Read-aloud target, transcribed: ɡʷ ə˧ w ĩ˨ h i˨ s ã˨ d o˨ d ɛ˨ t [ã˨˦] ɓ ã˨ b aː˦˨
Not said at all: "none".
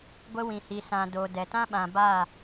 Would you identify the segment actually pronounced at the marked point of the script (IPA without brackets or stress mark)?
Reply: ã˦